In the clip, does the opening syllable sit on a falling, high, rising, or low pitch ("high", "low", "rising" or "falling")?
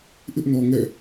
high